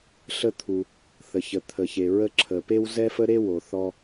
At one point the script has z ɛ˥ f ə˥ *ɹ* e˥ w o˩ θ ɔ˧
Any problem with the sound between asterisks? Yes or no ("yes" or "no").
yes